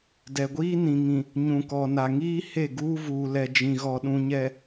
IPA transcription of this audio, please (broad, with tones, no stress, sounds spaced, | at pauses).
d ɛ˨ ɡʷ iː˦ n ĩ˨ ŋ ĩ˨ | ɲ ũ˨ k ɔ˨ n a˨ ŋ iː˦ h e˦˨ ɡ uː˦ v uː˨ l ɛ˨ d͡ʒ ĩ˨ ɣ ɔ˨ ɗ ũ˨ ɲ ɛ˨